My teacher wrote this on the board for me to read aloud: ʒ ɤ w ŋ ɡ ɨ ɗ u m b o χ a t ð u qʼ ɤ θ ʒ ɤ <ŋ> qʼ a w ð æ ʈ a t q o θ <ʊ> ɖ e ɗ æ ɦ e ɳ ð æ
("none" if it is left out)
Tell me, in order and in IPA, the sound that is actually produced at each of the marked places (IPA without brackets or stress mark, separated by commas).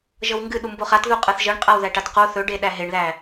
ɳ, ɵ